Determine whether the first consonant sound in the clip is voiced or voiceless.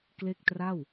voiceless